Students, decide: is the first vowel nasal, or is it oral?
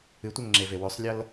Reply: oral